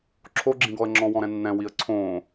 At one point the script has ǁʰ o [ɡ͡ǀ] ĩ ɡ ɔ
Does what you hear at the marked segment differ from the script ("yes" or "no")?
yes